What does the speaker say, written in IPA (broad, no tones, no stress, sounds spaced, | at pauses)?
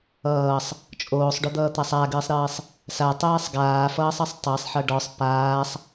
ʌː sˤ | t͡ʃʼ oː sˤ ɖ o d̪ ʌː t̪ a sˤ a ɡ ɨː sˤ ɾ ɨː sˤ | s a tˤ ɛː sˤ ɡ aː f ʌː sˤ ʌ sˤ tˤ a sˤ ħ ʌ ɖ ɔ sˤ p aː sˤ